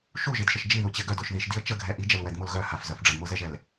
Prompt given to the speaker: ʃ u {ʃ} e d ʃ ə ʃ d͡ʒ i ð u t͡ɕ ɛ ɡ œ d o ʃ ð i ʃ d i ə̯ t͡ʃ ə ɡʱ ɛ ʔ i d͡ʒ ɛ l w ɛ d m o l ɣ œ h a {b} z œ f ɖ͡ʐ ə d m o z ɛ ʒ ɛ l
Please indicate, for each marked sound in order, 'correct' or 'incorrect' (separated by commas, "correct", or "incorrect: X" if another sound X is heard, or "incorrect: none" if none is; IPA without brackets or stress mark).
incorrect: ʒ, incorrect: f